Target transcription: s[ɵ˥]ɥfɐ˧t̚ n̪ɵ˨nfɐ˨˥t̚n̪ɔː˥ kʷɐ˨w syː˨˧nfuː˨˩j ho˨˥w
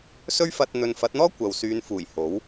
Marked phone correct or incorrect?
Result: correct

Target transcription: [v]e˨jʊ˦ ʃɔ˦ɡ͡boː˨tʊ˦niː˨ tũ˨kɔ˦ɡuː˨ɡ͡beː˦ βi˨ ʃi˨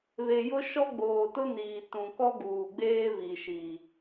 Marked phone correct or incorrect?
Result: incorrect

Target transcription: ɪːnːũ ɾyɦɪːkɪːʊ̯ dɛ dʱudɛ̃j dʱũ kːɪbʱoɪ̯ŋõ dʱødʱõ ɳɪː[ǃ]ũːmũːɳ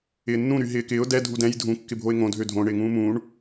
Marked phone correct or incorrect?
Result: incorrect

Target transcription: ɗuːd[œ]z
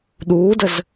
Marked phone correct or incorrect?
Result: incorrect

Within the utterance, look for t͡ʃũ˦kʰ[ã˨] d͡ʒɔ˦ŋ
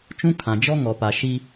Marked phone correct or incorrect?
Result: correct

